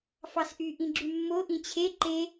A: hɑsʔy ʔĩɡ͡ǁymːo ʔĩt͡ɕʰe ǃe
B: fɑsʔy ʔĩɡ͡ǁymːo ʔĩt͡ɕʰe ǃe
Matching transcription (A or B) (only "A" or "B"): B